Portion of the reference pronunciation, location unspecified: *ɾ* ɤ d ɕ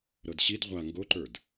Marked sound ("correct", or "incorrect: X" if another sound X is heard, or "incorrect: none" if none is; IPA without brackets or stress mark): correct